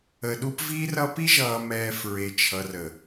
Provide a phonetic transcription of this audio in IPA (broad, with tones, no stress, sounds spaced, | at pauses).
ə˨ ɗ u˦ p v i˦ r ʌ˦ p i˦ ʒ ʌː˨ m ɛː˨ f ɹ e˨ t͡ʃʰ ʌ˨ r ə˨